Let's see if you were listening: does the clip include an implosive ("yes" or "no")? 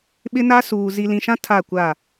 yes